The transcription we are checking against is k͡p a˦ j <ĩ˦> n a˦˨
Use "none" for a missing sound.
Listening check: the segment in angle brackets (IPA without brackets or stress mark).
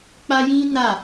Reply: ĩ˦